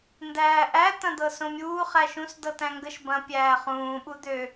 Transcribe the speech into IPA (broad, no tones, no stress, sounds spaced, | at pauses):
n d æː ʔ æ t̪ ɐ̃ d̪ ɤ s õ mʲ uː χ æ ʃ ũ s d ɤ t æ̃ ŋ ɡ ə ʃ b ɐ̃ pʲ æː χ ũː ɓ u d̪ ø